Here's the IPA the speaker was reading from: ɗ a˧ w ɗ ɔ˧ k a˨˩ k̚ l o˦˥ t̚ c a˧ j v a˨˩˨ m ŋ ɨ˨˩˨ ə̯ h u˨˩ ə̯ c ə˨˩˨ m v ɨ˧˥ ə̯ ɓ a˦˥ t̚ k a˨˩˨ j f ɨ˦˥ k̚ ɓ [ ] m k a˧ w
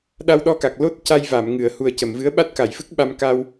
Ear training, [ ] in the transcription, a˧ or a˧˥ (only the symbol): a˧